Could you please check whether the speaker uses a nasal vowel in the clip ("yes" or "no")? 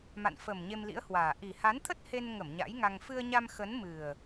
no